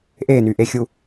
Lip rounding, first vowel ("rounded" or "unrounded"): unrounded